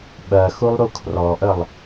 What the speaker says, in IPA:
ɓ ɜ x u lˠ ɾ u kʰ r ɔ ʔ ə lˠ

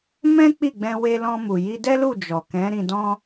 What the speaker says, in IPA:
m ɛ̃˦ k͡p i˦˨ ɡ͡b ɛ̃˧ w e˧ l ɔ̃˧ m u˨ j i˧ d ɛ˦ l u˦˨ d͡ʒ ɔ˨ k ɛ̃˨˦ ɾ ĩ˧ d ɔ̃˦

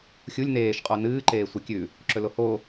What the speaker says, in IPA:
xʲ u lʲ n eː ʃ qʼ o n ɨː ǃ eː sʷ ɨ kʲ ʉ | ǁ ɵ l o h o

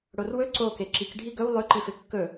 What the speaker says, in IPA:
ɽ o r w ɵ ǀ o k e ǁ i k ɖʱ i ɡ ɵ w lˠ ʉ ǃ i f e kː ɵ

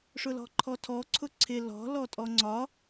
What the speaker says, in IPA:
ʂ ʊ l ɔ̤ ǃʰ ɔ tʰ ɔ ǀʰ ʊ ǀʰ ɪ l ɔ̤ l ɔ tʼ ɔ ŋ͡ǀ ɒ

